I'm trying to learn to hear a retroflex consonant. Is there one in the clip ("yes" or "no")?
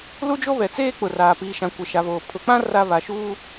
no